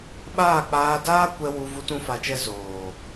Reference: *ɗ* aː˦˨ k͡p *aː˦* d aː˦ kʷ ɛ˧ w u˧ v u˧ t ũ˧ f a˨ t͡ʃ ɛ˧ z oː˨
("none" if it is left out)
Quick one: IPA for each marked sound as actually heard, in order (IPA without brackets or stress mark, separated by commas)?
ɓ, aː˧